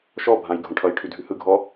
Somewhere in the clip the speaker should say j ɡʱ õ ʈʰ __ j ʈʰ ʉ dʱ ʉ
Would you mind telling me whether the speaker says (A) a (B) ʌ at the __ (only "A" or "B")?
B